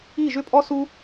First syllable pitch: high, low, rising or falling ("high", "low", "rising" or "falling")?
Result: falling